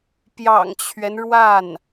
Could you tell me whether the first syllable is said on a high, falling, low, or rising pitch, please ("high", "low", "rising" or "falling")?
low